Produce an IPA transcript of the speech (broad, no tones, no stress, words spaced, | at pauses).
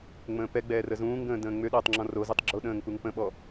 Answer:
ŋ͡mə̃ːpɛɡ͡bɛː rəzũːŋɡə̃ː də̃ːŋ͡mʏɗəːtˤ ŋ͡ǁɔ̃rozutˤ ɡ͡ǁoɗə̃ːŋ puŋpə̃ɓɔ